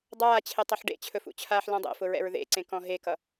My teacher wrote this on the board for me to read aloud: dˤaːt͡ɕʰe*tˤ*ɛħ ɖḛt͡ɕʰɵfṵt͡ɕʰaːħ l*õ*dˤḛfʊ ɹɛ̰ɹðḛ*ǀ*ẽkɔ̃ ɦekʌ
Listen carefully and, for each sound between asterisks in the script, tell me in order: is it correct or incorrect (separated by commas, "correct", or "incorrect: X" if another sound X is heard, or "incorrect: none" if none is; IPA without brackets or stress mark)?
correct, incorrect: ɔ̃, correct